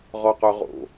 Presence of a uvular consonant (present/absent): present